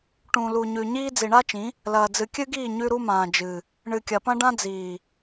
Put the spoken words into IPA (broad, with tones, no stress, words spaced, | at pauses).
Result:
ʈũ˨lu˨ɲʉ˨ ɲiː˦ d͡zi˨ɳa˦t͡ʃĩ˨˦ | lɐː˨d͡zɨ˨kʲɨ˦ɡiː˦˨ ɲʉ˦ɾu˦mãː˨d͡ʒɨ˨ | ɳɨ˨kʲɐ˨pɐ̃˦ ɖã˦ d͡ziː˨